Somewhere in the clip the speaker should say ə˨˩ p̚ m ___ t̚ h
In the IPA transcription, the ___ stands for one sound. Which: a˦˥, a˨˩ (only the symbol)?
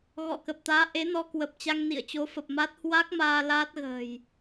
a˦˥